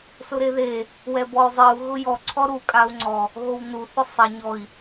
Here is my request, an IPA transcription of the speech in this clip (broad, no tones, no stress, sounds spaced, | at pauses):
s ʊ ɾ e ð e | w ɛ b ɔ y̯ zˤ i u̯ ɣ ʊ j ɔ ǀʰ ɔ ɾ u kʼ a u̯ ŋ͡ǀ ɔ | ɣ o w n u θ ʊ sˤ ɛ ɲ ɔ i̯